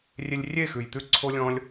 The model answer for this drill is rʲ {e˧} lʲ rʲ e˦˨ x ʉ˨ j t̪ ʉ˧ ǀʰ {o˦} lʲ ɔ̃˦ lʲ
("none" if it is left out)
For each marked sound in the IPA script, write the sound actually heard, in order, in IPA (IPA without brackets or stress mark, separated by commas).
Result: e˧, o˦